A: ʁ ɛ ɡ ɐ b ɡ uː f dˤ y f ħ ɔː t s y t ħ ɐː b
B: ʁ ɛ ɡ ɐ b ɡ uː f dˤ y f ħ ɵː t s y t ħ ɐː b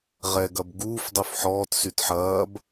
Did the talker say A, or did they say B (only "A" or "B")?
A